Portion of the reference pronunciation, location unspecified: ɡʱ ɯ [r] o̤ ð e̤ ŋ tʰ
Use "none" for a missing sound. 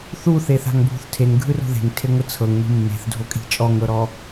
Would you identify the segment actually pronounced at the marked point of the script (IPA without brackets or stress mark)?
r